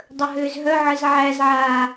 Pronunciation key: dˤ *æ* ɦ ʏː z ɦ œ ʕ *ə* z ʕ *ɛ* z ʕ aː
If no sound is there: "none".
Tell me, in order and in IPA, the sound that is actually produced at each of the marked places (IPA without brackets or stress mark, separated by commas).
ə, ə, æ